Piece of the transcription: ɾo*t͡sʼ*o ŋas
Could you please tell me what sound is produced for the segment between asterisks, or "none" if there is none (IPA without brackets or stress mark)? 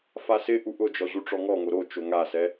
t͡ʃ